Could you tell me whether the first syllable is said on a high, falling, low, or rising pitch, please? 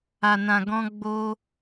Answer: low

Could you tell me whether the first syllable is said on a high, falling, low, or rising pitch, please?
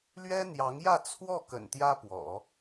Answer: high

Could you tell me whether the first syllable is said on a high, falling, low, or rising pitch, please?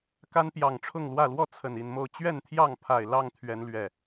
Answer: high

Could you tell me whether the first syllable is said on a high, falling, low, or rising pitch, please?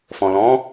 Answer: low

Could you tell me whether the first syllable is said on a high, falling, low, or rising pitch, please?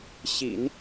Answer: low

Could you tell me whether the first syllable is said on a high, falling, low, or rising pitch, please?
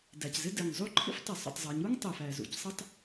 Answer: low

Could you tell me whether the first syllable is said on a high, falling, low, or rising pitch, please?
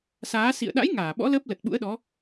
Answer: rising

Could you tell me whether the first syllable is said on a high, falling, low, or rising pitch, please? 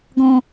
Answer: high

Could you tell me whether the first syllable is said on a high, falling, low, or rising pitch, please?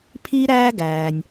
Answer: high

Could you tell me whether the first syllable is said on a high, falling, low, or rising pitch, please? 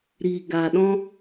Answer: low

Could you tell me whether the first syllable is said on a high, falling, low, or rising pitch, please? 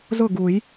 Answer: falling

